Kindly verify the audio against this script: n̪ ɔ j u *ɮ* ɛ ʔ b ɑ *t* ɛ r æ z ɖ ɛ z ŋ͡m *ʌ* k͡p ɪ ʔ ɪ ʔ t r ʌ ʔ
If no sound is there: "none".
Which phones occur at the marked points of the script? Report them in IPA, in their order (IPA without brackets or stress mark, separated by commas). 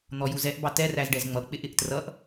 z, t, ʌ